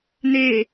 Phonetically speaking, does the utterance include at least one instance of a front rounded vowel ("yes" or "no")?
no